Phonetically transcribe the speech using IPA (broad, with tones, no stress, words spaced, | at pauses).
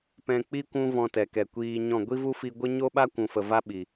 pɛ̃˧k͡pi˦ kʷũ˦vɔ̃˧tɛ˨kɛ˨ kʷiː˧ɲɔ̃˦˨ ɡʷi˦vu˦fi˧ ɡʷə˦ ɲo˦ɓa˦ kʷũ˨fə˨va˦ ɓi˨